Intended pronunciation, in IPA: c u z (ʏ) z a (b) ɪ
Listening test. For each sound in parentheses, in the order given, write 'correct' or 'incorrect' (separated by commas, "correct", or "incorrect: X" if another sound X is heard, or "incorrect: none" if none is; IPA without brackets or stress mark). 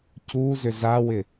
correct, incorrect: w